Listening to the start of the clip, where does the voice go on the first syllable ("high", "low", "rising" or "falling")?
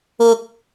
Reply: high